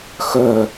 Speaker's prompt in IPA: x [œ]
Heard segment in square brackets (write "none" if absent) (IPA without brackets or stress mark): œ